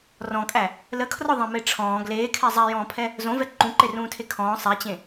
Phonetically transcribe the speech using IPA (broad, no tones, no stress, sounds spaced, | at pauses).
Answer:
r ɔ̃ kʼ æ | l ə kʰ r ɔ ðˤ ẽ m e ʈ͡ʂʰ ɔ̃ː ɡ l eː kʰ ɛ zˤ ɛ j ɔ̃ː pʰ ɛ | z õ v ɛ ǃ ũ ǃ e r ũː tʰ e kʰ ɔ̃ː sˤ ɛ t͡ɕ ẽ